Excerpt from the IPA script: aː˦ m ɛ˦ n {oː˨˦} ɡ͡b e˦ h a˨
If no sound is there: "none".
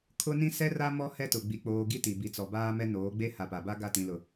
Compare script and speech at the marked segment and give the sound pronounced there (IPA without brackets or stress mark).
oː˨˦